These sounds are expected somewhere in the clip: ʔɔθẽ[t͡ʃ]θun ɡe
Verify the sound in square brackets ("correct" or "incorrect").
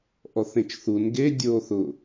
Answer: correct